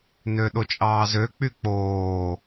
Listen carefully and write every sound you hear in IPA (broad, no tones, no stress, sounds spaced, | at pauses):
n ø ɗ o t͡ʃʼ ɑː z ø k͡p y k͡p oː